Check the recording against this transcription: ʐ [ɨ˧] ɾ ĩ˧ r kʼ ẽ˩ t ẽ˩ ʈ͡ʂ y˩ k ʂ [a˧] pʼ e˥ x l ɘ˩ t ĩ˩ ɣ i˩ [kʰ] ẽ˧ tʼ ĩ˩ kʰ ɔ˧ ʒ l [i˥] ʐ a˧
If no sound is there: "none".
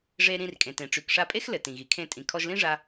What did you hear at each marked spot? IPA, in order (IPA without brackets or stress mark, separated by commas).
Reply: e˧, a˧, kʰ, ĩ˥